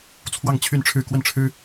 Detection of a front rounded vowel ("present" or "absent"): present